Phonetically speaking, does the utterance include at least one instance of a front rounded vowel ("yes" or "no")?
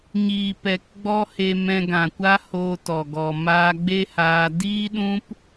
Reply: no